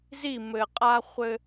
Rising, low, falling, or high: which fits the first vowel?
falling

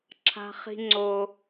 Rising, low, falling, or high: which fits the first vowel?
high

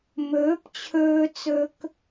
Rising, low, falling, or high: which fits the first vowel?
rising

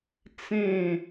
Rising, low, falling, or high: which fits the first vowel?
falling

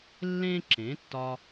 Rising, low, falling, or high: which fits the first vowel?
high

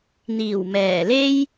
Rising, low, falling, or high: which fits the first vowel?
low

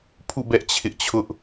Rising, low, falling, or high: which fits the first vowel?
falling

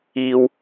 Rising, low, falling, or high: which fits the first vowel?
high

